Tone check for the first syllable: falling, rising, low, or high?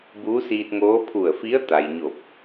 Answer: rising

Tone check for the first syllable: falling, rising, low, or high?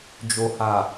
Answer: low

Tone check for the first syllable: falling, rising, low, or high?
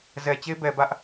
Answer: low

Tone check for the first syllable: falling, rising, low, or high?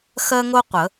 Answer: high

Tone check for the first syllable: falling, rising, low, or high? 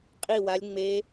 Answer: falling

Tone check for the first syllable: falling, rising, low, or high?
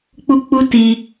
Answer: high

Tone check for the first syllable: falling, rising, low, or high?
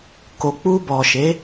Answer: low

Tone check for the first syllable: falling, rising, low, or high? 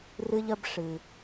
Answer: high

